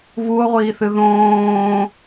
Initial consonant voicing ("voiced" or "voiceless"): voiced